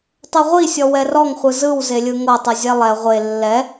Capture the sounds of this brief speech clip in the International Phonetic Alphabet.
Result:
tˤɛʁʷisʲɔ wɛrɔŋ χʷɯzɯw zelʲɯŋɤtˤɯ zʲɛlˠɛ ʁʷe lːɛ

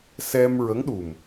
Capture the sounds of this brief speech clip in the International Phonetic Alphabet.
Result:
sɛ˧mɹə˧˥ŋɗu˨˩m

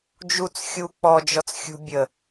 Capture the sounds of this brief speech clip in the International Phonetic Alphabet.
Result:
d͡ʒut͡s xʲu k͡pɔd͡ʒɔt͡sxʲṳ bʲə

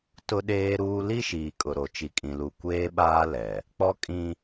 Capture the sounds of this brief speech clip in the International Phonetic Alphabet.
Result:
tʊ˦ɗeː˦ɾuː˦ li˦ʃiː˨kʼʊ˨ɾo˨ t͡ʃi˨kʼĩ˨lu˨ kʷeː˦ɓaː˦lɛ˨ | k͡pɔ˦kʼĩ˦

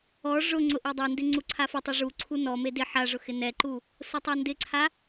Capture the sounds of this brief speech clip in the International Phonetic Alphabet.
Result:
ɔ ʐʊŋ͡ǀʊ ʔedˤɛndɪ ŋ͡ǀuǀʰafʊtˤe ʐuǀʰu nɔme dɪ ħaʐʊ xɪnɛǃu | sʊtˤandɪǀʰa

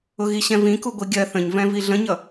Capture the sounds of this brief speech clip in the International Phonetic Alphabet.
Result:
ʊɣiɕɛ̃vĩ kuɡʷiɡʲɜ θə̃ɲvɛ̃ viɮə̃ɲʌ

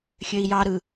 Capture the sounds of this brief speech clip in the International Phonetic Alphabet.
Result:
xʲøi̯jɑɾɯ

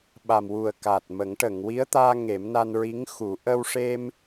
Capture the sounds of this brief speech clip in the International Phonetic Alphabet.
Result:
ɓa˨˩mwu˨˩ə̯ kaː˨˩t̚mə˨˩˦ŋ ʈə˨˩˨ŋwi˧˥ə̯t̪aː˧ ŋe˨˩˦mna˧n ɹi˧˥ŋxu˨˩˦ ʔə˧wʂe˧m

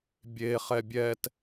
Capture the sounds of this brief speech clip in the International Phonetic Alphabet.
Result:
bʲe χɛbʲɛt

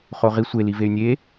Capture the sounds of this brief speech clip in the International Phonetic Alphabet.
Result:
χoʁi sʷeli vey̯nʲe

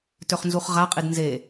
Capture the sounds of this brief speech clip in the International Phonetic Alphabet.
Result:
tøχnzuχʁaqʼid nze

